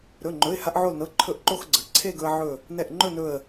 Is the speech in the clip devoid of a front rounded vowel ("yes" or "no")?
yes